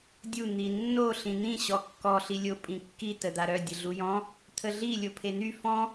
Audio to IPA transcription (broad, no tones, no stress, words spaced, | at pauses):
dʲu n̪inːo ɬĩn̪ĩ ɕɔkːɔ ɬilʲo pʼĩkːi təd̪aɾœ dʲəɮujɔ̃ | t̪ʰəɮi lʲopʰen̪y fɔ̃